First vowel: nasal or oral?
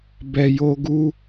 oral